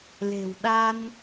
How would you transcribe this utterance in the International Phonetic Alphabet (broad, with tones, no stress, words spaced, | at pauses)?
le̤˨˩w ɗa˧n